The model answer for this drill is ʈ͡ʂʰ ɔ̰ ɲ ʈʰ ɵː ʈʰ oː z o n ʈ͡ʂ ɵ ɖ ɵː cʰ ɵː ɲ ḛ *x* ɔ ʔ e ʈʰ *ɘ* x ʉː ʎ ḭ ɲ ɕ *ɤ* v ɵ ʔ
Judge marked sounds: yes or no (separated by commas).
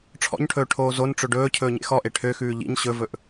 yes, no, no